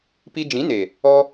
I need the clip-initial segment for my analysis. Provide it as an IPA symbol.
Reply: p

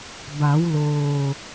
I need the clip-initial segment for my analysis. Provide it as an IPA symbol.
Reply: b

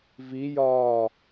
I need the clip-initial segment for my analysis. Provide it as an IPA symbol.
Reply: v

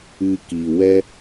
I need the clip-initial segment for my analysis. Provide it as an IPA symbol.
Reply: ɨ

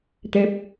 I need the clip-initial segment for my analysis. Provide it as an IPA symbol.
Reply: t̪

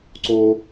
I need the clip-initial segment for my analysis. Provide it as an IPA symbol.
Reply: ǀ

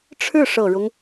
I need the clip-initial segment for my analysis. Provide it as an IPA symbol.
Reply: ʈ͡ʂʰ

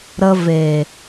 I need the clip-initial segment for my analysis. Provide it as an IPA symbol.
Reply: ɾ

